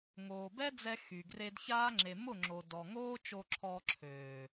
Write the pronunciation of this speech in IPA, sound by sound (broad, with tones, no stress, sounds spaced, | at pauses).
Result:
ŋ oː˨ b ɛ˦ d͡z ɛ˧ x y˨ ɡ r e˧ d ç aː˦ ŋ͡ǁ e˨ m ʊ˦˨ ŋ͡ǁ o˨ d ɔ˨ ŋ oː˦ t͡ʃ o˧ ǁʰ ɔː˧ ǁʰ øː˨